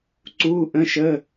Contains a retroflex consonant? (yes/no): no